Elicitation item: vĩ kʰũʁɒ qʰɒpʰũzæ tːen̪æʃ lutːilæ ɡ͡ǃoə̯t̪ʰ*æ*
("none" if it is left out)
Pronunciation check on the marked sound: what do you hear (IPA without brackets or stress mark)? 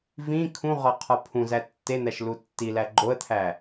æ